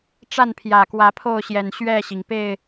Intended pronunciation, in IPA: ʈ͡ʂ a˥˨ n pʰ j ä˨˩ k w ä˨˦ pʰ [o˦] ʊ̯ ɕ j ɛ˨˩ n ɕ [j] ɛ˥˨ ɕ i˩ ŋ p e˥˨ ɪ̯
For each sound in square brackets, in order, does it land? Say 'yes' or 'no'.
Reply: no, no

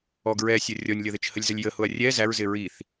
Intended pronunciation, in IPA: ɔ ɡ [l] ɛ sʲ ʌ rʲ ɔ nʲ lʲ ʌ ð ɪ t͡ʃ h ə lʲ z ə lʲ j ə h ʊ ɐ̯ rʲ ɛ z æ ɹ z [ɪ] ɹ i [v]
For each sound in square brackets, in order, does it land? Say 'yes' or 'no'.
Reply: no, yes, no

